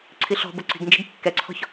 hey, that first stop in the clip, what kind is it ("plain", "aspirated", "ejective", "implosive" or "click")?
click